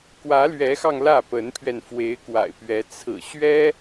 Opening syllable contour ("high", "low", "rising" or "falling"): rising